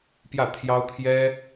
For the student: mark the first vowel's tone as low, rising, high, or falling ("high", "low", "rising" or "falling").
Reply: falling